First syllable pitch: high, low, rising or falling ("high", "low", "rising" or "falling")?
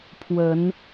rising